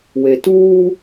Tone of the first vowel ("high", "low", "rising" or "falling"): low